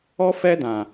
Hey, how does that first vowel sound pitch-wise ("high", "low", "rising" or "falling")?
high